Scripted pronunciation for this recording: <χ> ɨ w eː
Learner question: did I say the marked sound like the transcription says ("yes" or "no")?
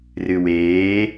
no